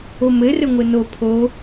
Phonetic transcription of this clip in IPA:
o m ɘ r ɘ ŋʷ ɘ n o pʰ o

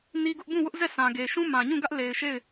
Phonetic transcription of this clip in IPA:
n i˦ ɡ ʊ˦ ʔ b ũ˦˨ w ʊ˦ ʔ z ɛ˦˨ sʰ ã˨ ɡ e˨ ʃ ũ˦ m ã˨ ɲ ũ˦˨ ɡ ä˦ ʔ l e˨ ɪ̯ ʃ e˦˨ ɪ̯

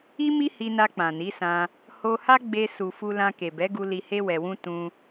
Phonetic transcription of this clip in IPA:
i˦ m i˦ h i˧ n a˧ k͡p ã˨ n i˨˦ s ã˧ | h o˧ h a˦ ɡ͡b e˧ s u˨ f u˧ l ã˧ k e˨ b ɛ˨˦ ɡ u˧ l i˧ h e˦ w ɛ˧ w ũ˦ t ũ˧

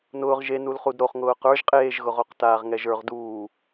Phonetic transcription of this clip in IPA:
n ʊː ʁ ʒ e n u l χ u d ɾ o χ ŋ ʊː q ə˞ ʒ qʼ eː ʒ ɣ ʊ ʁ o q t aː ʁ ŋ ɛ ʒ ə˞ ʁ d uː

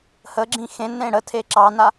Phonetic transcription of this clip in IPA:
h ə ɡ͡ǁ ĩ x ẽ n ẽ ɽ ə tʰ e ǁ ɑ n a

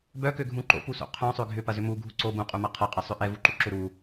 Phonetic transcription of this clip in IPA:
b œ k ø ɡʱ ũ ǃ o̰ p u s o̰ qʰ œ̃ sˤ ø ɡʱ ʏ p ɐ z ʏ m u ɡʱ u ǀ o b ũ qʼ u m ɐ qʰ ɐ qʼ ɛ sˤ ʏ ʔ ɛ v u ǃ u ǁ ʏ ɾ u

